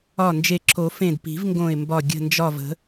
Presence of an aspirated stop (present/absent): present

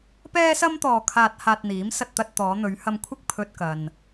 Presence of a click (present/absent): absent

